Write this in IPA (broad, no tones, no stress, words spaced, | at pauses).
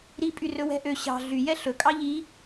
ɾipʼy rɵwɛ̤ʔø ɕɑ̤ ɮyjɛ ɬɵkʼɑ ʎi